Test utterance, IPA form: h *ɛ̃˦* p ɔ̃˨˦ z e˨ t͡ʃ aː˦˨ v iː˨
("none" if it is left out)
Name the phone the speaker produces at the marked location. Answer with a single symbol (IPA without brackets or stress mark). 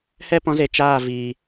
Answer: ɛ˦